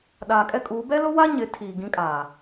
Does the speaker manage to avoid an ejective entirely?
no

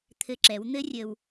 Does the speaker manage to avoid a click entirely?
no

